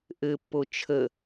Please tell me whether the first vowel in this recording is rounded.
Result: no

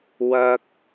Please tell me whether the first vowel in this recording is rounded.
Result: no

